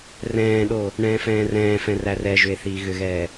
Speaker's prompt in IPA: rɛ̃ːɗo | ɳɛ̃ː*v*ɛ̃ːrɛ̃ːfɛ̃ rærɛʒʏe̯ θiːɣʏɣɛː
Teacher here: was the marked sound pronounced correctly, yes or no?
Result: no